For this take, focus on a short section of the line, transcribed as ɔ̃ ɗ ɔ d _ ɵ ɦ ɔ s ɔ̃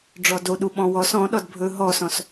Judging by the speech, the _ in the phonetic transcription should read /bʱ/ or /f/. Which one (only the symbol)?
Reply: bʱ